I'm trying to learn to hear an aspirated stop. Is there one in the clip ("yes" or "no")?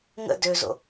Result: no